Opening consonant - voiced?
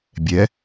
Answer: yes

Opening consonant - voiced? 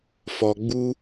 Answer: no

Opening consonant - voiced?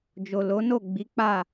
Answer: yes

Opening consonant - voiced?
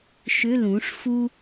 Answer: no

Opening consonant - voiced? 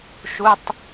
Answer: no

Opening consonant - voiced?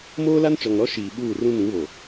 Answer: yes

